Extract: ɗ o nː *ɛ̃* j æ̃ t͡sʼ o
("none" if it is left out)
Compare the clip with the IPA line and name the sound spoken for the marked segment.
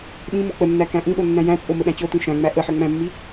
æ̃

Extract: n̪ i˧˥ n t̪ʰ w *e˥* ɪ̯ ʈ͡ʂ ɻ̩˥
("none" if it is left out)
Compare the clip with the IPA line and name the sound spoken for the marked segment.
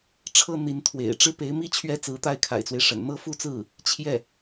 ḛ˨˩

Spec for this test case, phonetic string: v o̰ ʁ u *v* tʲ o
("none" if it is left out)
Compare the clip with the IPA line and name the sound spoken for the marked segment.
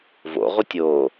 none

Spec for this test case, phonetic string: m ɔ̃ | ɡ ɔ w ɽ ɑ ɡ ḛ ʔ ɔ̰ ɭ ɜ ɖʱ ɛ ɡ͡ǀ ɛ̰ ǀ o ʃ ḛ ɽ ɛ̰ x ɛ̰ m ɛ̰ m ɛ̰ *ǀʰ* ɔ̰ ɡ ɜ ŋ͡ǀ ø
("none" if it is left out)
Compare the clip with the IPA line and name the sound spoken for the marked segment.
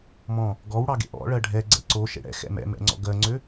ŋ͡ǀ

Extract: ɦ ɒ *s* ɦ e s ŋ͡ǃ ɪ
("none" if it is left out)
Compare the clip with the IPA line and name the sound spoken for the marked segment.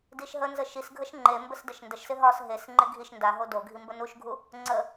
s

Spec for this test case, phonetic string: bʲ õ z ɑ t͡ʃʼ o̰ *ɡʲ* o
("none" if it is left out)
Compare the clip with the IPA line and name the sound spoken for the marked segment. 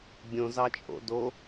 d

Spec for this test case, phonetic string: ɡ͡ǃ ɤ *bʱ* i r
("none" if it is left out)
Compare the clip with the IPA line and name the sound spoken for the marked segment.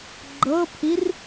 pʰ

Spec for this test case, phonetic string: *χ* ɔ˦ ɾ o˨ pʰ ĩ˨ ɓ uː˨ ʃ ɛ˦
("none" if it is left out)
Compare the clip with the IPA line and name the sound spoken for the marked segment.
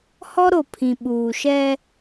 h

